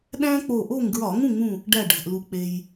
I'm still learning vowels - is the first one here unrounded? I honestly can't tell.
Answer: yes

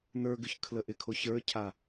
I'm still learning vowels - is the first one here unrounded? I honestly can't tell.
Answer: yes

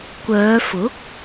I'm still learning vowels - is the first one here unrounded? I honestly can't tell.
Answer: no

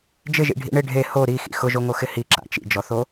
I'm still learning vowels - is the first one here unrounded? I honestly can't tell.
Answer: yes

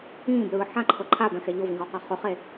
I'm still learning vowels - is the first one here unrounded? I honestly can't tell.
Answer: yes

